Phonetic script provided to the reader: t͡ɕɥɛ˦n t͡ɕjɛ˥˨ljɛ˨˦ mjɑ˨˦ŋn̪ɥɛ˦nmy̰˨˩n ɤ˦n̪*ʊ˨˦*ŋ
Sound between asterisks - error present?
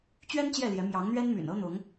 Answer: no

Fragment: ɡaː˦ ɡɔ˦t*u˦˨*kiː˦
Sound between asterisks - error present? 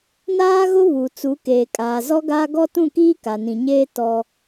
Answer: yes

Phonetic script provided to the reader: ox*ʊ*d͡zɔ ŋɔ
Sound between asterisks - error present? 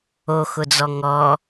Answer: no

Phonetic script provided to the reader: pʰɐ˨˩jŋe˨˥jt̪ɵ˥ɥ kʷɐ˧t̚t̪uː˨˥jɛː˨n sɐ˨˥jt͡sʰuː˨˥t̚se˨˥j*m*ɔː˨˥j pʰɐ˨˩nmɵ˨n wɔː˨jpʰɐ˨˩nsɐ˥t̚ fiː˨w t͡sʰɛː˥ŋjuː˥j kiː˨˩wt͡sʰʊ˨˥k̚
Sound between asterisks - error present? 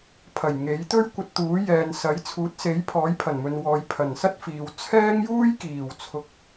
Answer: yes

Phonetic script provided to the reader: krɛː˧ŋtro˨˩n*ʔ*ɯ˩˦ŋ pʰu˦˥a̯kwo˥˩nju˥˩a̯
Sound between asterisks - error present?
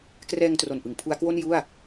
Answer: no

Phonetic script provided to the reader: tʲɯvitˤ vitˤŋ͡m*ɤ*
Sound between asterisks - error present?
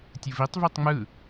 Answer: yes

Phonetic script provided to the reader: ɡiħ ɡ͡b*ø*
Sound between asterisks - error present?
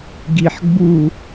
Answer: yes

